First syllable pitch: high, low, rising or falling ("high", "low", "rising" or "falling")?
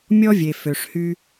high